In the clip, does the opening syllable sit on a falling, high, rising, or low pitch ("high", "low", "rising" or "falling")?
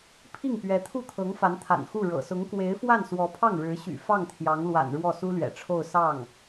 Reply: falling